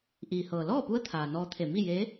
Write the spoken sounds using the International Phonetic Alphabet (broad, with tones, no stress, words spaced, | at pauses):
ʔiː˩hɤː˩lɔː˥˨pu˧˥ə̯ t̪ʰaː˩nɔː˧t̪ʰe˧˩ mi˥˨je˧˥